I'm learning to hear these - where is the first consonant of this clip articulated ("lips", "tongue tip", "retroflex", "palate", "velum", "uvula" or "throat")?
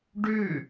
retroflex